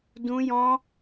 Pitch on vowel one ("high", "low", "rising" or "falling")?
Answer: high